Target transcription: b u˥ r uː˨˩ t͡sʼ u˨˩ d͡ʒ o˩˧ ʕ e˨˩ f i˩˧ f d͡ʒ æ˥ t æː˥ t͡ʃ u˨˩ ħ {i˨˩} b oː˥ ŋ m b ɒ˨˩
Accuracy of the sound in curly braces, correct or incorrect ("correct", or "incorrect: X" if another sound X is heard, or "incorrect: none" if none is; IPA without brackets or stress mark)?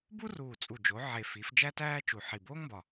correct